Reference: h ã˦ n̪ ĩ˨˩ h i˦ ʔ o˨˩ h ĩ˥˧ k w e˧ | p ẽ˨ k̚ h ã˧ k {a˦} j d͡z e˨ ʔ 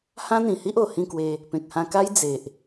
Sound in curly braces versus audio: correct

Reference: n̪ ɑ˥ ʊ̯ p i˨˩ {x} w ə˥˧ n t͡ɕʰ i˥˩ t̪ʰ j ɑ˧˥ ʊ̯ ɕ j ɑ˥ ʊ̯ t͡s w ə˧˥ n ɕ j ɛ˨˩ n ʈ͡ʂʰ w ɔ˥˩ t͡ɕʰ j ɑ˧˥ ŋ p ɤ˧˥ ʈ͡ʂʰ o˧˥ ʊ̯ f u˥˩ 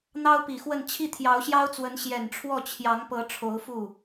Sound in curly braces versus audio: correct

